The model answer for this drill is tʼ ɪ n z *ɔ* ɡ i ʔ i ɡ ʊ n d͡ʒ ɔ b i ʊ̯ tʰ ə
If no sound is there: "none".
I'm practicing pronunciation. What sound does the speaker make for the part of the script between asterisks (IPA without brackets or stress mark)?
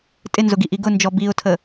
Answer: ʊ